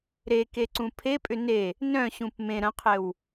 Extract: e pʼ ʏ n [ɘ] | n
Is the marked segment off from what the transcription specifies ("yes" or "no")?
yes